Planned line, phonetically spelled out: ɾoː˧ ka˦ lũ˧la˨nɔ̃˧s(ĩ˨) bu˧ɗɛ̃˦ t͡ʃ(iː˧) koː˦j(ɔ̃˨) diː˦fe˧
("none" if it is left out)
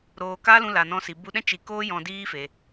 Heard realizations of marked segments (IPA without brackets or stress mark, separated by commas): i˨, i˧, ɔ̃˧